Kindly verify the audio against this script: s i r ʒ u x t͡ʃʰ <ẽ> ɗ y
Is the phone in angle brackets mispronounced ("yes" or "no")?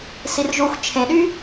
no